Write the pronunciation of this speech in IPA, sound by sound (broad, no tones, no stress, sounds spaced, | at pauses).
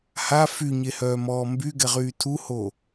h a f y ɲ e h œː m ɔː m b y ɡ ɛ ʁ yː tʰ u h o